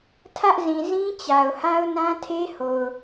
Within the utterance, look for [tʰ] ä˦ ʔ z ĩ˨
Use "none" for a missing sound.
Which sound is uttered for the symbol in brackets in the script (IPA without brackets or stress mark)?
tʰ